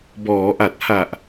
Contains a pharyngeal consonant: no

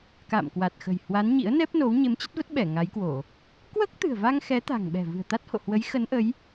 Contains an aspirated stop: no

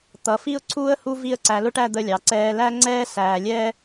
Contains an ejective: no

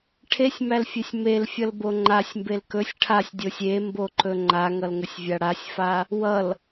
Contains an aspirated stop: yes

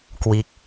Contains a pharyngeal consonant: no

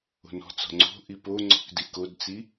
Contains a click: yes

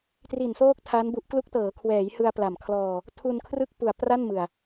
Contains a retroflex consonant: no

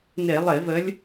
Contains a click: no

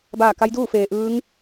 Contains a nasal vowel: no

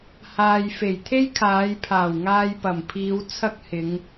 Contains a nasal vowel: no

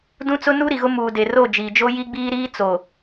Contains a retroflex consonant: no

